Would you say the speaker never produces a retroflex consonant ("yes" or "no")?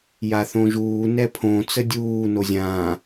yes